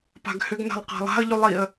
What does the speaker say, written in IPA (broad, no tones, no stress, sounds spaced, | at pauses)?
p a̤ ɡ h ʏ ɡ n a̤ lˠ q a̤ lˠ a̤ ə̯ ʎ y lˠ i ə̯